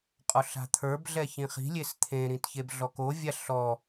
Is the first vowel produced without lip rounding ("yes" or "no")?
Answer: no